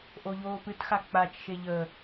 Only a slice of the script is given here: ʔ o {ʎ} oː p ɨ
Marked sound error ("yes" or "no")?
no